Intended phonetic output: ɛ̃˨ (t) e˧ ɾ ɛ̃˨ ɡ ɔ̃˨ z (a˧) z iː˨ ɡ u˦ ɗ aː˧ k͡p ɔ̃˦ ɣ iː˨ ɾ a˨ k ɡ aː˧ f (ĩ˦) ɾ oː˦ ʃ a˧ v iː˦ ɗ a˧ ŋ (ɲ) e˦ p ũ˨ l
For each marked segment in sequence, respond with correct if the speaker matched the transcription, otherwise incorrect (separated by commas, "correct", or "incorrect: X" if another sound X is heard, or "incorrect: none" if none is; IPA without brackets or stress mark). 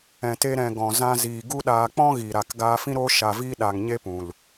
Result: correct, incorrect: ã˧, correct, correct